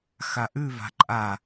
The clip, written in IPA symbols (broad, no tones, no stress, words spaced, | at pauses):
xaʔʉva̤ ǃʼa